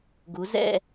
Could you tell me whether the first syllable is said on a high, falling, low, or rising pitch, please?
rising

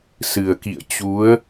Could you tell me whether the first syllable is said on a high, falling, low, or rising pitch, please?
low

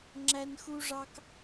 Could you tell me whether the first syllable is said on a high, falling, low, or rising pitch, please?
high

